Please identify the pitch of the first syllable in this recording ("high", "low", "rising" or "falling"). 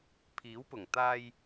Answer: rising